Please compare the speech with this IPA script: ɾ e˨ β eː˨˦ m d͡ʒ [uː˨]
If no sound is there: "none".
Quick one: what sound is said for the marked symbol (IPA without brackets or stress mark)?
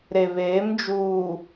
uː˨